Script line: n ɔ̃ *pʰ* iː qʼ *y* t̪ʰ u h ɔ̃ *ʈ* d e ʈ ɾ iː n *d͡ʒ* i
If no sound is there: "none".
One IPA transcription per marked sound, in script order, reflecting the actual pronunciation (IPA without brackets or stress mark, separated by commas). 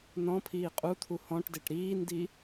pʰ, u, ʈ, d